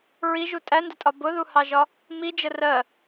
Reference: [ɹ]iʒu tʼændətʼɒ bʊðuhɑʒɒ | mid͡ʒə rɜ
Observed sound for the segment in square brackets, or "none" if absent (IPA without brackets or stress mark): ɹ